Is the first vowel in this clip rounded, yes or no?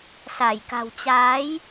no